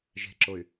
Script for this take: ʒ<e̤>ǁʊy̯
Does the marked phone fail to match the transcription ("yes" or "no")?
no